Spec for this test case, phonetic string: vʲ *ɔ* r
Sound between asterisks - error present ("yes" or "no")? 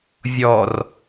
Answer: no